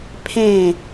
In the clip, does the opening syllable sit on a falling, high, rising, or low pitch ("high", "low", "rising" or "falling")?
falling